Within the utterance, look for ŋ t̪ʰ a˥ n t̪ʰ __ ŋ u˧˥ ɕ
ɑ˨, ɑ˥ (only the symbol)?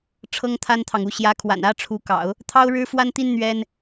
ɑ˨